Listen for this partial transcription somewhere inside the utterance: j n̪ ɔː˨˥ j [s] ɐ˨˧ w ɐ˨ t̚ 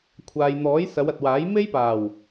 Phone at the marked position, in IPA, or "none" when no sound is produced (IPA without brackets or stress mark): s